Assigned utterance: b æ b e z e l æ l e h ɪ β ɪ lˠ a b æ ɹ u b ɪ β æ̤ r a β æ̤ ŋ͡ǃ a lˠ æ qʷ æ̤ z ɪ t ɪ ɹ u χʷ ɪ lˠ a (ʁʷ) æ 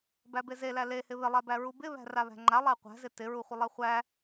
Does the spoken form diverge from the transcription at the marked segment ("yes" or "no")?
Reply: yes